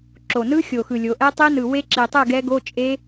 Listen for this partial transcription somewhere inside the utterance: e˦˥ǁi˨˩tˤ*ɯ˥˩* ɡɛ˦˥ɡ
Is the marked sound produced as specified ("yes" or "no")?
yes